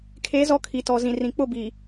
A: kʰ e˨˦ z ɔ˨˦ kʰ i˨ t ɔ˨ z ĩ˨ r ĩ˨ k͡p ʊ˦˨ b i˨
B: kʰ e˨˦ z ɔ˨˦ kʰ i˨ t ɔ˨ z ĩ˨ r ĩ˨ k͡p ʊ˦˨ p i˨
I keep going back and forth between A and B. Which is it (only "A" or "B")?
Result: A